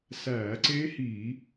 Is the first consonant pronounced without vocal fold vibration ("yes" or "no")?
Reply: yes